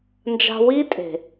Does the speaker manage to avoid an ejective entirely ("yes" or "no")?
no